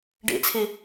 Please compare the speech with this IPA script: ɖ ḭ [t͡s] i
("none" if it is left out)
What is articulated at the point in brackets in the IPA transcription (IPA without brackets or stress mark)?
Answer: t͡sʰ